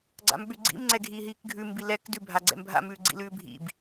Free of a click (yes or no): no